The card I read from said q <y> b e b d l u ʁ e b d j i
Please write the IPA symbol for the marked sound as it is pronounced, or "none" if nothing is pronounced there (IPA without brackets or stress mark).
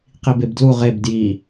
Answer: i